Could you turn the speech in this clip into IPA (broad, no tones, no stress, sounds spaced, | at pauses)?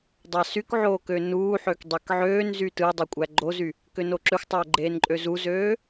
dˤ ɑ s y k ʕ oː k ø n uː ħ ø k dˤ e k ʕ øː n z y t ɯ dˤ o kʷʼ æ ɡ͡ǃ o z y | k ø n o ǁ ø xʷ tˤ oː ɡ͡ǃ eː n ǃʼ ø z u z øː